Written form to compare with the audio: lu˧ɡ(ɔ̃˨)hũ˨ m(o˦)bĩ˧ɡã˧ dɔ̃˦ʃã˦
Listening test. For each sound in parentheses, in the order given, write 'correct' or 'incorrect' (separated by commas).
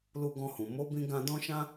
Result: incorrect, incorrect